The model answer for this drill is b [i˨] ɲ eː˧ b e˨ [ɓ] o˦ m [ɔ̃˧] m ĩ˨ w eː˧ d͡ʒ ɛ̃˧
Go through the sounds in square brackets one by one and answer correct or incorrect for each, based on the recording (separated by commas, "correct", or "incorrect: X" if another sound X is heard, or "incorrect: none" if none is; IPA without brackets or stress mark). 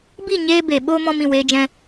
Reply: incorrect: i˦˨, correct, correct